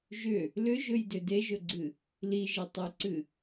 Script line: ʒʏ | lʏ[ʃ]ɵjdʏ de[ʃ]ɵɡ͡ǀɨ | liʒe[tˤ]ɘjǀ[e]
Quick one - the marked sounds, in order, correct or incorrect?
incorrect: ʒ, incorrect: ʒ, correct, incorrect: ɨ

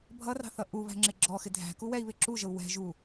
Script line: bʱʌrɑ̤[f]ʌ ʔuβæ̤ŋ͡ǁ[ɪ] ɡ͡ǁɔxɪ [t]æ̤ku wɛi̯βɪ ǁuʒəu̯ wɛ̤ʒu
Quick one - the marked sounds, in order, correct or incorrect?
incorrect: θ, correct, incorrect: dʱ

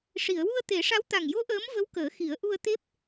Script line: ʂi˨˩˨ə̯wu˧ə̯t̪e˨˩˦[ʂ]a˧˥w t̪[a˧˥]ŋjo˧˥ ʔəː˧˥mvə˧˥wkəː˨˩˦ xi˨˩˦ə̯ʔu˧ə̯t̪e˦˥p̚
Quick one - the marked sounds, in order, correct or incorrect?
correct, incorrect: a˨˩

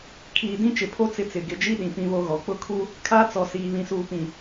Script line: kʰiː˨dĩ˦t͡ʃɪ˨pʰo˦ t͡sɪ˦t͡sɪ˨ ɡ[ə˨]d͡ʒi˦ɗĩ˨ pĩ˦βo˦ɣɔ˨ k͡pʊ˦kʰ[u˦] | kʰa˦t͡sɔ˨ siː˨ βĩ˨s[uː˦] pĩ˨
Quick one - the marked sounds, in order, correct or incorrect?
incorrect: ɪ˨, correct, incorrect: uː˨

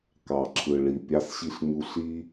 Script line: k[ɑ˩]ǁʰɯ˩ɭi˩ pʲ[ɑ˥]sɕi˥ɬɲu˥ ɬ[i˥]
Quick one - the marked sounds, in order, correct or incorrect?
correct, correct, correct

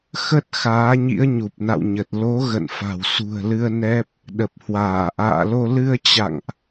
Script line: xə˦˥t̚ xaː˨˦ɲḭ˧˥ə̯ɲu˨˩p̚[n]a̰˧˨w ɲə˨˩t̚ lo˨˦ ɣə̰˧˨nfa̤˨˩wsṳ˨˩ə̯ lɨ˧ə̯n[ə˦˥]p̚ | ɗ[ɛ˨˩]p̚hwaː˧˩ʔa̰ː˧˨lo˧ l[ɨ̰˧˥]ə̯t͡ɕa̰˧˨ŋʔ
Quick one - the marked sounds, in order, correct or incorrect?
correct, incorrect: ɛ˦˥, incorrect: ə˨˩, incorrect: ɨ˧

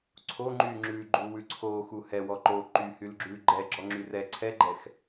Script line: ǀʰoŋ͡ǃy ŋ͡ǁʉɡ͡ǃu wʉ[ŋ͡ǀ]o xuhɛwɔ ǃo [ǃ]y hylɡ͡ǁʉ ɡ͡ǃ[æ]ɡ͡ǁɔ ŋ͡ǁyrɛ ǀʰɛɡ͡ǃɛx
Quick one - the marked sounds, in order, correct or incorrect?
incorrect: ǀʰ, correct, incorrect: ɛ

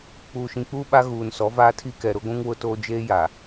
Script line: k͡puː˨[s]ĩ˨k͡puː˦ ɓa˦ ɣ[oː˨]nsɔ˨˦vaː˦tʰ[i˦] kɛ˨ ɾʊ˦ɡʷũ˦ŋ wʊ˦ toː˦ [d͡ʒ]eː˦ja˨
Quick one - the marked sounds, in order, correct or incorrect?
incorrect: ʃ, incorrect: uː˨, correct, correct

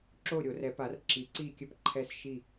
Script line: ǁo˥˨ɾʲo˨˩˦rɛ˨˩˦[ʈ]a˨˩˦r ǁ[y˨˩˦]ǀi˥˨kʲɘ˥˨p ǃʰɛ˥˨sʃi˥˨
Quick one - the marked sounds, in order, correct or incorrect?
incorrect: p, incorrect: i˨˩˦

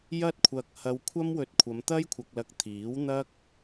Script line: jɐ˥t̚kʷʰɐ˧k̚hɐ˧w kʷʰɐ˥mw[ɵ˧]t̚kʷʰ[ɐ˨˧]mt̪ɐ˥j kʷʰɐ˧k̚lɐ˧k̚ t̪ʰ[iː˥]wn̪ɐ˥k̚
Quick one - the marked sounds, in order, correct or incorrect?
correct, correct, incorrect: iː˨˥

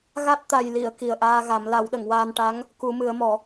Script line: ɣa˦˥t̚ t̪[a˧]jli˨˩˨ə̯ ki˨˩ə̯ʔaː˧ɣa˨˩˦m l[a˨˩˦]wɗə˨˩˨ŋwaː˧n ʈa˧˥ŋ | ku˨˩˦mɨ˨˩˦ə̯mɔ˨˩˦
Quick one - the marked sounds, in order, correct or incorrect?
incorrect: a˨˩, correct

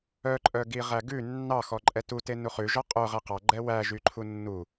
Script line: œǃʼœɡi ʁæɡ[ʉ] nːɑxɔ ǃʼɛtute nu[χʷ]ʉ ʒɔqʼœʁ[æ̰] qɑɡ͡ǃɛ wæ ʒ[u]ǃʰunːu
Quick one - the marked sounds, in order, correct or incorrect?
correct, incorrect: χ, incorrect: æ, incorrect: y

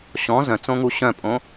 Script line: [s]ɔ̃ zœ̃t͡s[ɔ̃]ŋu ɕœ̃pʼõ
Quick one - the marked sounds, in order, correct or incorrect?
incorrect: ɕ, incorrect: õ

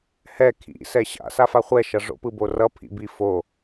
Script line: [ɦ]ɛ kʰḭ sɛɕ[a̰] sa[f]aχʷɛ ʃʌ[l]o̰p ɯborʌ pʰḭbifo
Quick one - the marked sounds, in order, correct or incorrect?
incorrect: h, correct, correct, incorrect: ʐ

